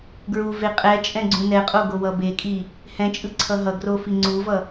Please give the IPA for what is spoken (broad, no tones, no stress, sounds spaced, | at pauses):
ɡ ɹ u v e qʼ ɛ t͡ʃʼ ɛ̃ ɡ͡ǀ ũ n ɛ qʼ o ɡ o w ʌ b e kʼ i | h ɛ̃ t͡ʃʼ ɯ ǀʰ ʌ ɦ ʌ ɡ r o f i ŋ͡ǀ u v ʌ